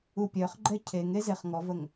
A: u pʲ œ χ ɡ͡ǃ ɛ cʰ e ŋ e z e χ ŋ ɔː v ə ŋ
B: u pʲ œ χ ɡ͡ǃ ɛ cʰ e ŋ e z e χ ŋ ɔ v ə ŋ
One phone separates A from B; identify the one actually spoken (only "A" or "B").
B